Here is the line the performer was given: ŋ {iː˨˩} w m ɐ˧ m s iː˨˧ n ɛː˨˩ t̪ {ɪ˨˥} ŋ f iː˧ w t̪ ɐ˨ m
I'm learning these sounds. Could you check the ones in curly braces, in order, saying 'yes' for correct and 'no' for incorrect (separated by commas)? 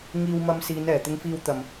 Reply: no, no